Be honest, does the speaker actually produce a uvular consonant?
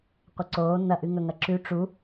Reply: yes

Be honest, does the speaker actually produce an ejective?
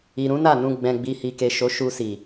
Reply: no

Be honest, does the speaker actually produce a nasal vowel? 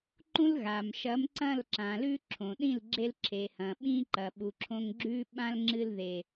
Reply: yes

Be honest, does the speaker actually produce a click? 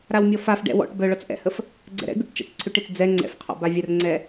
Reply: yes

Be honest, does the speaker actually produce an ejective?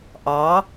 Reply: no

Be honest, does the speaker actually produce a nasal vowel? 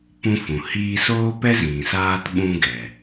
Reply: yes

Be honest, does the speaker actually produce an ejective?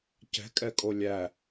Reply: yes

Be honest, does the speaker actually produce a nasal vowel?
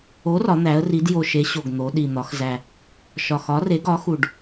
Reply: no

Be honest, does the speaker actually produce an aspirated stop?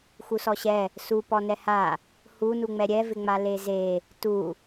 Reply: no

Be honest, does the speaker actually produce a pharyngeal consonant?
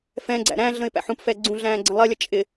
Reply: yes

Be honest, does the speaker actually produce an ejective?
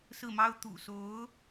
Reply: no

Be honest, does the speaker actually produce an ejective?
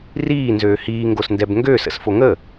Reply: no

